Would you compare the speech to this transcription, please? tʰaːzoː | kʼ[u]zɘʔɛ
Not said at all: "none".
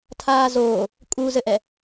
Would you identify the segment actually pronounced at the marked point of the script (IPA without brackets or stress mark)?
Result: u